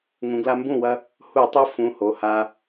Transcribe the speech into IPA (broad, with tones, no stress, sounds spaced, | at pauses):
ŋ ũ˩˧ ɡ l a˦ m b ũ˥˩ w ɐ˦ | h u˧˩˧ tˤ o˦ f ũ˩˧˩ h o˩˧˩ h a˦